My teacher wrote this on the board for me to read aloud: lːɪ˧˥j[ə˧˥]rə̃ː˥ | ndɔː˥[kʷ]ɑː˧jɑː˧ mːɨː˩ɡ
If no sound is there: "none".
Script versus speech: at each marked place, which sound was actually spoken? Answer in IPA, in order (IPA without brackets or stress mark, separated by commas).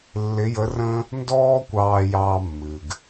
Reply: ə˧˥, kʷ